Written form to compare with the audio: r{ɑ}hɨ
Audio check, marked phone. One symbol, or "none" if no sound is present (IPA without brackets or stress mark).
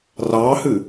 ɑ